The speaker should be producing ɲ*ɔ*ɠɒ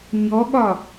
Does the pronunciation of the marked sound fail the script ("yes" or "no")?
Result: no